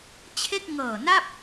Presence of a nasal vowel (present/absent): absent